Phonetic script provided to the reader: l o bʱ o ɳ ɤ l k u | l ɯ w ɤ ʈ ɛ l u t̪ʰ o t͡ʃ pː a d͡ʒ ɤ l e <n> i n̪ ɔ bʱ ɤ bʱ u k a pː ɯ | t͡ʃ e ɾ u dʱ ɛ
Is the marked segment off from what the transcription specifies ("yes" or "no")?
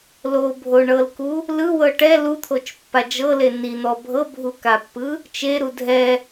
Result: no